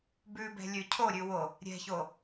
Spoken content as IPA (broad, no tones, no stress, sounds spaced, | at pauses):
b ʉ b ɛ̤ lʲ ʉ cʰ o ɾʲ ʉ w o | ɾʲ ɛ̤ ç o